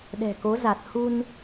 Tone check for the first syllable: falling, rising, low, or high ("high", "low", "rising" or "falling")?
low